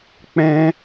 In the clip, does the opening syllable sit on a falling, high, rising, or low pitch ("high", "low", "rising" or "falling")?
high